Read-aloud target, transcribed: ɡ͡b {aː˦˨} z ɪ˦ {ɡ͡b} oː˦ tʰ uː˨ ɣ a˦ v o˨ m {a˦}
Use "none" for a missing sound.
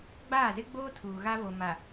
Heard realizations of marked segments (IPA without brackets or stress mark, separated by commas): aː˦˨, ɡ͡b, a˨